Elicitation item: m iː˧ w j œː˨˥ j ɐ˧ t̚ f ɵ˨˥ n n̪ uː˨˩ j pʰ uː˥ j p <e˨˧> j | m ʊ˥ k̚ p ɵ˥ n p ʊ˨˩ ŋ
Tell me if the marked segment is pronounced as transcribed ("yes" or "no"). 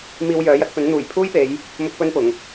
yes